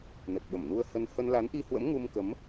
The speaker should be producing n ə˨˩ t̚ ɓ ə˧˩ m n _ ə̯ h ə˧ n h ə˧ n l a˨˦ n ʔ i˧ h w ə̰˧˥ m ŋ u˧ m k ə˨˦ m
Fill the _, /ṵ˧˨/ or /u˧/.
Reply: u˧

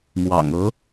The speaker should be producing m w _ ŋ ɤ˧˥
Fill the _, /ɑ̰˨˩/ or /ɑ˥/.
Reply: ɑ̰˨˩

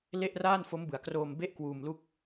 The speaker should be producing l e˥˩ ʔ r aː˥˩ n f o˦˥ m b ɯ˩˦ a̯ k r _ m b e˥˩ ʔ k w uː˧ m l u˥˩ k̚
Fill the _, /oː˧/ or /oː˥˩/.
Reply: oː˧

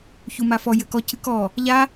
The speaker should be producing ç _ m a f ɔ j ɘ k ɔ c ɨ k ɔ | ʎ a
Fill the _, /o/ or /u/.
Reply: u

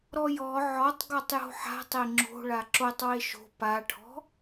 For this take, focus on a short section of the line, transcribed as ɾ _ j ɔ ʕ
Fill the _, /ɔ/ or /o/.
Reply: ɔ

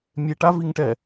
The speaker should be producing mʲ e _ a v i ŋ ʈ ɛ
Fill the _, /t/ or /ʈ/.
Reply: ʈ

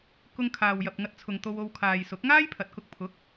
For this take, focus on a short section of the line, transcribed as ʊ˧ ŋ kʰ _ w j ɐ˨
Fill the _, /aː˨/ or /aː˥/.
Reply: aː˨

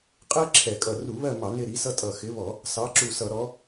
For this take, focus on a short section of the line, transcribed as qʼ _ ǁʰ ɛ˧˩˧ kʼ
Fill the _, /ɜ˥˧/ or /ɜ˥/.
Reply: ɜ˥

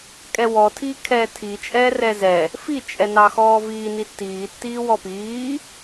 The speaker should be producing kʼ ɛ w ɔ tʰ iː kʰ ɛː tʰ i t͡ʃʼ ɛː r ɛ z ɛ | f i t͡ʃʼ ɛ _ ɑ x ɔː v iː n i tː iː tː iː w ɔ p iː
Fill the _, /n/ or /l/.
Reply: n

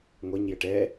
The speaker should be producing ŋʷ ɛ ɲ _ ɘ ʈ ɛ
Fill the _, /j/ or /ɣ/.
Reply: j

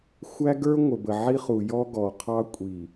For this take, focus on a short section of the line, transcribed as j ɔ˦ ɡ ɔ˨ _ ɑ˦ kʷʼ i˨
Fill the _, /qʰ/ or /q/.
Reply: qʰ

